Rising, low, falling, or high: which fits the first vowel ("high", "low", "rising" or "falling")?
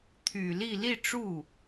low